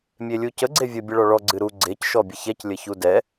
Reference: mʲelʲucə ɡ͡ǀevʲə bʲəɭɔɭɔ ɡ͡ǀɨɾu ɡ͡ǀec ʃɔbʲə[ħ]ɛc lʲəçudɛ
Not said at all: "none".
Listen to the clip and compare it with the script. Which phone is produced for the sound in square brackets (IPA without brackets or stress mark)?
ç